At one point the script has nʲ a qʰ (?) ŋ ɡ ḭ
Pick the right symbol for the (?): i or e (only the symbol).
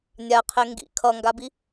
e